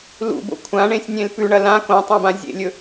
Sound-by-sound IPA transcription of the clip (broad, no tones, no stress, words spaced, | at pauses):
lṵbo̰ kʷʰãɳẽsʲnʲẽl pʉɳɐ lã kõtˤõbã zʲḛlʲɵ